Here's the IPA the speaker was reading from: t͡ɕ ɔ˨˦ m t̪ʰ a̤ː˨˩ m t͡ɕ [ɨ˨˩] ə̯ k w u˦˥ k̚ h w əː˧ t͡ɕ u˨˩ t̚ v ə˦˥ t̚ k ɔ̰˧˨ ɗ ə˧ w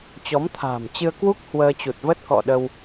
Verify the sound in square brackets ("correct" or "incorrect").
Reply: incorrect